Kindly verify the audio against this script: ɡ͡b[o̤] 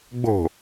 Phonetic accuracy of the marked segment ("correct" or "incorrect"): correct